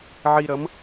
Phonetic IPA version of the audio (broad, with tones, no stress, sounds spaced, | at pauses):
ʕ i˧ ɾ ʌ˩˥ m